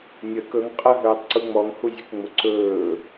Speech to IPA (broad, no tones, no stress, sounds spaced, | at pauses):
nʲ ə k ɵ ŋ qʼ ə ɦ ɵː tˤ ǀ u ŋ͡m ɔ ŋ h u zʲ ə k ŋ͡m ʊ ǀ ɵː